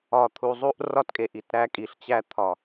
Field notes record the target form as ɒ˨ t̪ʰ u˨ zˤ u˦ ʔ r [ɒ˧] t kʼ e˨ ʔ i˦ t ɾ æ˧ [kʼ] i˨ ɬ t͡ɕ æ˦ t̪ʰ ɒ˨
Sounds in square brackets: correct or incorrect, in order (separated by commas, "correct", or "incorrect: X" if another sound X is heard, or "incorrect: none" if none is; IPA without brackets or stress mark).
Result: incorrect: ɒ˦, correct